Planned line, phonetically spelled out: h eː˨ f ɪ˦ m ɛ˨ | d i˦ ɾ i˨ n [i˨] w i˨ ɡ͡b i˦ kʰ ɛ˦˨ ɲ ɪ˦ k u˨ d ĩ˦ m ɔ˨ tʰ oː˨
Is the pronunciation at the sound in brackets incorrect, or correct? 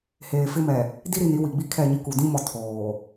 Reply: incorrect